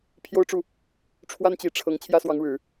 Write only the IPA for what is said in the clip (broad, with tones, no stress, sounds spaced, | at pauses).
pʰ j o˥ ʊ̯ ʈ͡ʂ u˥˩ | ʈ͡ʂʰ w a˥ n t͡ɕ i˨˩ ʈ͡ʂʰ ɤ˧˥ ŋ t͡ɕʰ j ä˥ s w ɑ˧˥ ŋ ɻ ɻ̩˨˩˦